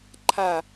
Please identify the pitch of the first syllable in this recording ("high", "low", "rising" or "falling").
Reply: falling